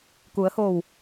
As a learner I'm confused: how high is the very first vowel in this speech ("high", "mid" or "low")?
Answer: high